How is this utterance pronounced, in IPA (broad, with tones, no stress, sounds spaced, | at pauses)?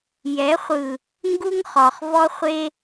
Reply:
j ɛ˨˦ χʷ ɯ˨ | ŋ ɡ u˦ ŋ χ ɔ˨ χ v ɔ˦ χʷ e˦